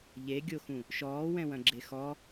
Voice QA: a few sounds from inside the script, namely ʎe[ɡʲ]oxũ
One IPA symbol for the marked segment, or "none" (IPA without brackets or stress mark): ɡʲ